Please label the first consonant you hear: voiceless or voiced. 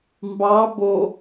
voiced